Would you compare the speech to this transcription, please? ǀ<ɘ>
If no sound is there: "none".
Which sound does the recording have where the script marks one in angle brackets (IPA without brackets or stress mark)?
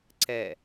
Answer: ɛ